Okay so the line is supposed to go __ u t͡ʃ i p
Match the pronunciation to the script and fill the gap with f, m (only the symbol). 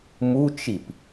m